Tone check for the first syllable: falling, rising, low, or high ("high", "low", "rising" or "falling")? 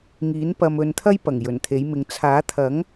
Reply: rising